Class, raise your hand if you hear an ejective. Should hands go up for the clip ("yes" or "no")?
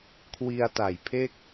no